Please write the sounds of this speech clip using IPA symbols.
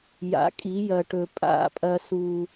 j a̰˨˦ kʼ i˨˦ j ɐ˨ ʈ ɵ˨ pʼ a̰˦˨ pʼ ɐ˦ s u˦

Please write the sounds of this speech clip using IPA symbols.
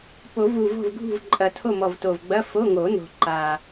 p o˨˩˦ v u˨˩ v o̤˦˨ v ɡʱ ṳ˦˨ v ǃʼ ɐ˨˩˦ tʰ o˦˨ m ɔ˨˩ v t o˨˩ v ɡ͡b ɐ˧˥˧ f o˧˥˧ ŋ o˨˩˦ n o̤˨˩ ǃ a˨˩

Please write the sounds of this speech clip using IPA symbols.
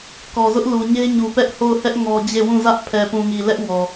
k ɔ˨ z ʊ˦ ʔ l u˨ ɲ e˦ ɲ u˨ p ɛ˦ ʔ h o˦˨ ʊ̯ h ɛ˦ ʔ ŋ ɔ˦ d͡ʑ e˦˨ w ũ˦˨ z ä˦ ʔ pʰ ɛ˨ p ũ˨ ŋ i˨ l ɛ˦ ʔ w ɔ˨

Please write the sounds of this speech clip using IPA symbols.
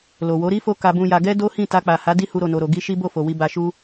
l o˨ w o˨˦ ɾ i˦ f o˧ k a˨ b ũ˨ j a˨ ɡ ɛ˧ d o˦ h ĩ˦˨ t a˧ k͡p a˨ h a˨˦ d i˦ h u˧ ɾ o˨ n o˨ ɾ o˨ ɡ i˧ ʃ i˦ b o˦˨ f o˨ w i˨ b a˨ ʃ u˧

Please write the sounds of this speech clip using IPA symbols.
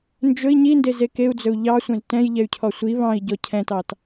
n d͡ʒ ɵ i̯ ɲ i n d e z e k e u̯ d͡z ɵ u̯ ʎ ɑ sʷ ɛ̃ z t ɛ̃ j ʎ ɛ y̯ cʰ ɔ sʷ i β ɑ̃ i̯ ɟ ɔ cʰ ɛ̃ t ɑ t

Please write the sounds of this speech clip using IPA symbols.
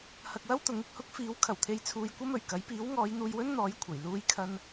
h ɐ˧ k̚ w ɐ˥ w t̪ ʊ˨˥ ŋ ɪ˨ k̚ h ʊ˥ k̚ f iː˨˥ w kʰ ɐ˨˩ w t̪ʰ e˨ j t͡sʰ uː˧ j kʷ ɐ˥ m ɵ˨˩ ɥ k ɐ˨˥ j p iː˨˥ w ŋ ɔː˨˧ j n̪ uː˧ j w ɵ˥ n n̪ ɔː˨˥ j kʷʰ ɐ˨˩ j l uː˧ j kʰ ɐ˧ n

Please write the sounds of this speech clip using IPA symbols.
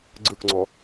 ɡ͡ǀ ɯ k ŋ͡ǀ ɔ

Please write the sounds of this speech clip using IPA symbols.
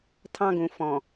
tʰ ɑ̃˦ ɡ ũ˨ f ɔ̃˨

